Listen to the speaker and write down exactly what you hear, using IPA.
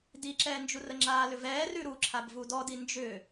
diǁɛːnd͡ʒu rəŋ͡ǁaːlʏvɛː rʉɾuǁʰab vudɔdi nd͡ʒʏ

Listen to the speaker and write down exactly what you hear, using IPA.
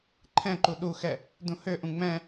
ǃʰɛ̃ǃu ɗuxɛ | dũhøʔũ ŋ͡mɛ̃

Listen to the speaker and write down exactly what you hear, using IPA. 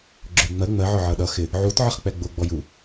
ɡ͡ǁʊjŋ͡mɜ ŋ͡mɜʕɔ ʕʌɗʌ xɪ | ʕut ʕəχk͡pɛɡ͡bʊɡ͡bɔj u

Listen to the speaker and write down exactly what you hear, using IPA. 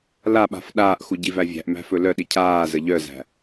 laɓa̤f ɗaːʔxu ɟivævʲæ̤ʔ mæ̤fɵlœɗi cʰaːzə ʎœzæ̤

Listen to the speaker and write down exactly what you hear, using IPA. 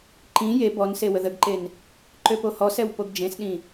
ǃĩ je bɔnse wəðəɡǃen | ǃøpohɔsɛw poɡd͡ʒẽsɗĩ

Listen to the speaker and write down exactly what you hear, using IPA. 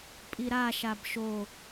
pʼiɾaʃab ʃo

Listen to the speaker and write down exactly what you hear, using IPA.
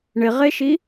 ɳɪʁeʃi

